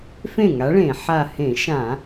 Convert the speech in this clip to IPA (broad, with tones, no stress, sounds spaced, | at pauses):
f ẽ˥˩ ŋ a˨˥ ɭ ẽ˧˩˧ ħ a˧˩ h ẽ˧˩˧ ʃ ã˧˩˧